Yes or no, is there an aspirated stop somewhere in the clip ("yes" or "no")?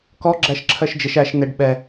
yes